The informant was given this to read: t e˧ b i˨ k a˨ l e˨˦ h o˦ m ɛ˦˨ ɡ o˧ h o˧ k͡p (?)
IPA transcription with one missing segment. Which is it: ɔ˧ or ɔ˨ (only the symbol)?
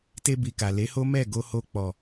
ɔ˨